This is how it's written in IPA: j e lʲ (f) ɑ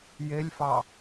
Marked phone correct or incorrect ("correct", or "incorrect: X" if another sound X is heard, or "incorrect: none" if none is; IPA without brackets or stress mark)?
correct